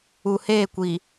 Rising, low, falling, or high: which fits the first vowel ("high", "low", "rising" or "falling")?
low